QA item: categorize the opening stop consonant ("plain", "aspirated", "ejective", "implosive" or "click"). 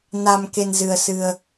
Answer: plain